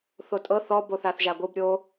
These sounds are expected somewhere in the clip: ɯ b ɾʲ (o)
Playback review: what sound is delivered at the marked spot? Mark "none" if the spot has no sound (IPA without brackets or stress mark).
o